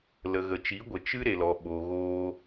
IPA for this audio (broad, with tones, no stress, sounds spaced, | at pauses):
l ə˨ ɣ ə˨ t͡ʃ i˨˦ ɡʷ ə˨ t͡ʃ ɨ˦ ɾ e˨ l ɔ˨ ɓ o˨ ɣ oː˧